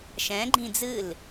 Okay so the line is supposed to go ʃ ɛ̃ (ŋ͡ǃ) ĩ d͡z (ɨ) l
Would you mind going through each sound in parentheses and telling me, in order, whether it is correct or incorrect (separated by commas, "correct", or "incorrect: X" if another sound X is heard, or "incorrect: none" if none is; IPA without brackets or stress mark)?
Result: incorrect: ɡ͡ǃ, correct